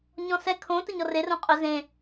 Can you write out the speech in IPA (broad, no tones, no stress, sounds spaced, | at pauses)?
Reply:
ɲ ɔ̃ s ɛ kʰ õ t ə ɲ ɔ r e r õ qʼ ɵ z ẽ